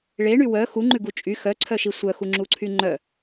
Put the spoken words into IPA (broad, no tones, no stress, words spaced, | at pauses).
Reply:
ɭeɳy wœ xuŋ͡ǃʉɡu t͡ʃʼy xœǀʰœʃi sʷœxuŋ͡ǁuǀʰy ŋ͡ǃœ